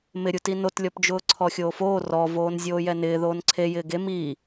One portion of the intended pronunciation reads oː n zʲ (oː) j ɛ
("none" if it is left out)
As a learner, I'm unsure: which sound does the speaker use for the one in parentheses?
oː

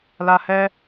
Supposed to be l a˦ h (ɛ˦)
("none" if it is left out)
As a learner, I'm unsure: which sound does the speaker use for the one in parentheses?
ɛ˦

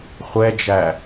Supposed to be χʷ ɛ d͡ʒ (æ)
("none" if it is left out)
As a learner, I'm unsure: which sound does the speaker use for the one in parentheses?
æ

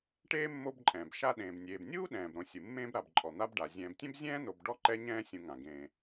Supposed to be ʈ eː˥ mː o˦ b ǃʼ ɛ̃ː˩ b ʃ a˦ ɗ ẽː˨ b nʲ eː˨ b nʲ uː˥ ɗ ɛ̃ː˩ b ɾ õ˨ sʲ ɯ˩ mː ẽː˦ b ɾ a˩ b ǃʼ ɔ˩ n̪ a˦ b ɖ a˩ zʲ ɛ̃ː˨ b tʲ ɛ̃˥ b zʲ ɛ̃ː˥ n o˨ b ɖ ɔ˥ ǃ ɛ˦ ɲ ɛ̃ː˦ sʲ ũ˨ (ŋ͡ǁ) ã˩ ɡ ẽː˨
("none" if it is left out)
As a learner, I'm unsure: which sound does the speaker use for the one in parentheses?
ŋ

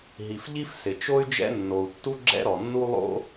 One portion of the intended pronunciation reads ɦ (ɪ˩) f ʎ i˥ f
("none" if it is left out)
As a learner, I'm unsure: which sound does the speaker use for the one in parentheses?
i˩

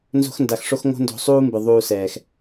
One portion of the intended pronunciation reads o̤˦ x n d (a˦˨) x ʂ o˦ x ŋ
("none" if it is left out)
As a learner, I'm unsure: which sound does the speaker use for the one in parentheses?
a˧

